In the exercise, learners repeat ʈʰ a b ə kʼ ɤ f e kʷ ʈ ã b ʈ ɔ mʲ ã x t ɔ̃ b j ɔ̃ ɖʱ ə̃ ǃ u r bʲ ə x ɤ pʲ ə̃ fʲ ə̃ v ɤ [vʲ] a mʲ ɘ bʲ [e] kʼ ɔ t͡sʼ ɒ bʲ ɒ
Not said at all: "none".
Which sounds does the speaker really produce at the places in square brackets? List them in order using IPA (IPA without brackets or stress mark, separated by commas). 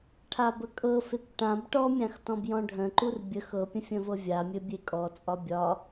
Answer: vʲ, e